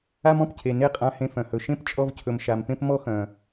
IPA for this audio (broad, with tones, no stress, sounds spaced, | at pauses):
a˦ m ɔ̃˧ p cʰ e˨ n e˦ qʼ ã˧ h ẽ˧ f œ̃˨ h ɵ˨ ʃ ẽ˦˨ p t͡ʃʼ ɔ˧ v cʰ ɵ˨ m ʃ a˨ m p ẽ˧ p m ɔ˧ x œ̃˨